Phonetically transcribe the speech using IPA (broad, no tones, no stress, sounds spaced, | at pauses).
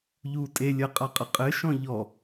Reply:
ʎ u tʼ e lʲ ɐ qʼ a qʼ ɐ qʼ ɘ ʃ ɔ̃ ʎ ɔ